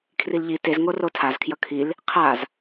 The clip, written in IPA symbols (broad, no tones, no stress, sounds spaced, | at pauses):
kʰ r i l ʎ i t e z ŋ o r o tʰ a z kʰ j ʌ kʰ i l | qʰ a z